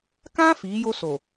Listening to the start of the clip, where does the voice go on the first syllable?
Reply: high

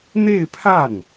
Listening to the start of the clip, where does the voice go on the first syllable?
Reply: falling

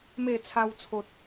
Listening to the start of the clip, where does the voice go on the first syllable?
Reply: falling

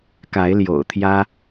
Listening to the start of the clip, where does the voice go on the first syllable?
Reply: rising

